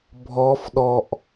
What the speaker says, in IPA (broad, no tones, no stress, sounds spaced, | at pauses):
bʱ ɔ f ɗ ɔ ʔ